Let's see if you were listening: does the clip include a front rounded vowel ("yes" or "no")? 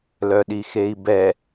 yes